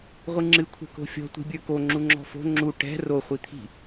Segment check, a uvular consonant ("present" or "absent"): present